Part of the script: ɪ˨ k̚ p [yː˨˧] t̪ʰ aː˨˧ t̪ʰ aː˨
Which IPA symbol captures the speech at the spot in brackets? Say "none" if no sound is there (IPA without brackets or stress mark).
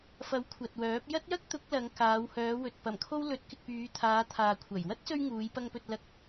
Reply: yː˨˧